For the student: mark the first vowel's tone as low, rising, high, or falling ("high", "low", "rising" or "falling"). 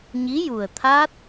rising